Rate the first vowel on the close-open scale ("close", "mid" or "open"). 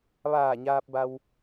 open